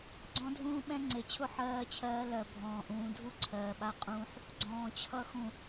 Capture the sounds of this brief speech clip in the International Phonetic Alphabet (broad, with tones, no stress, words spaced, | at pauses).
ɡ͡ǀɔ̃˦dʱũː˦ɓɛ̃˦ ŋ͡ǀe˨t͡ɕʰʊ˦ ħɜː˦t͡ɕʰɜː˦ lɜ˨ bʱɔ̃ː˨ʔũː˨ dʱu˦ ǀʰɜː˨ɓa˦ qʼũː˦ħ | ɡ͡ǀɔ̃ː˨t͡ɕʰʌ˦xũ˨